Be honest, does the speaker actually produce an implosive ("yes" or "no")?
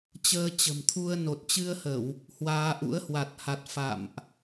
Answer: no